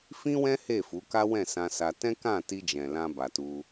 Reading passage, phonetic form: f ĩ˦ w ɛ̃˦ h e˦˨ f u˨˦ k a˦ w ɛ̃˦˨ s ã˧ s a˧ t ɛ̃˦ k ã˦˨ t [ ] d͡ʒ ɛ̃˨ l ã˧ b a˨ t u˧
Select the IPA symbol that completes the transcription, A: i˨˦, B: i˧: B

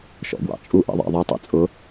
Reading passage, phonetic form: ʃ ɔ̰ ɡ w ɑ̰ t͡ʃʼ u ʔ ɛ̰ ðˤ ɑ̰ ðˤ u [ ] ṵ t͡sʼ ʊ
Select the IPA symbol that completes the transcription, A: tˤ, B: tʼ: A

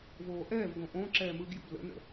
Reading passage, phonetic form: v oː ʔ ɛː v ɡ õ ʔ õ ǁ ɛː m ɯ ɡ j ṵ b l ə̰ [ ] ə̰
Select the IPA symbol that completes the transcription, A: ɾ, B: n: B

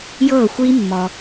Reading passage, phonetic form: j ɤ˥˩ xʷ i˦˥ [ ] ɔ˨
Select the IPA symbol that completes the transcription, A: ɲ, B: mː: B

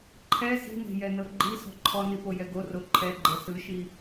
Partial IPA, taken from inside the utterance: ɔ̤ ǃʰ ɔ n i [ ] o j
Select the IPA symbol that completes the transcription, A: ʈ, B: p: B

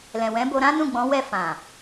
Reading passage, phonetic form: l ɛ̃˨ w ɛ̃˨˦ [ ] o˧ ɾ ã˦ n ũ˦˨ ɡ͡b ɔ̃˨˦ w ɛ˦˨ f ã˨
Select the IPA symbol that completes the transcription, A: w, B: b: B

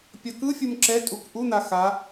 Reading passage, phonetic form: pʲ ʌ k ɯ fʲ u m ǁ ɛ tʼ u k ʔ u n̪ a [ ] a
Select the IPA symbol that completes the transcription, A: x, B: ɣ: A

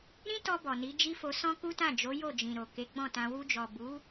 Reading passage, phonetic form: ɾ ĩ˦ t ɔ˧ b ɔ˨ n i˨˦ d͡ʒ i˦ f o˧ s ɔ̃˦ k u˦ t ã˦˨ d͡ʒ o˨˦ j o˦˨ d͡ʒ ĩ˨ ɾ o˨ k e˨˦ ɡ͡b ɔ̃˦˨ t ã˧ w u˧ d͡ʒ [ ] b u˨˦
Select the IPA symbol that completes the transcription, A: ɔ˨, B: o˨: A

